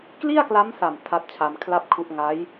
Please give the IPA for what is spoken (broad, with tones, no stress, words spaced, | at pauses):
kli˥˩a̯kla˦˥msa˨˩m tʰa˦˥t̚t͡ɕʰa˧mkʰla˥˩p̚kʰu˦˥ʔ ŋa˦˥j